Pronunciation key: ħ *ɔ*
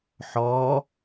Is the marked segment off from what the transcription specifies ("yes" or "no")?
no